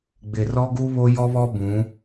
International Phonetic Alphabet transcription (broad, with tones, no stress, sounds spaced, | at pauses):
ɡ͡b ɪ˨ r ɔ˦ ɡ u˦ β o˦ j ɔ˦ β ɔ˦ b ũ˨˦